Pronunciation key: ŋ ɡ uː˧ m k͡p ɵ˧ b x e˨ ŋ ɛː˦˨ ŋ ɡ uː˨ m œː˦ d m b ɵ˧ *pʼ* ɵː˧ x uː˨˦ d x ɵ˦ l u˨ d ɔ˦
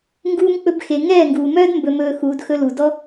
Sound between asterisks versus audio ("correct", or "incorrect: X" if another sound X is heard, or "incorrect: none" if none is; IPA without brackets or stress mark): incorrect: m